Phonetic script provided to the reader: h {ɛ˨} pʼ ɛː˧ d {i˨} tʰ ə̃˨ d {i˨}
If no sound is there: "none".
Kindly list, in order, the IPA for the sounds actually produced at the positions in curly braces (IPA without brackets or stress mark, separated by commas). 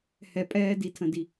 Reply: ɛ˨, i˨, i˨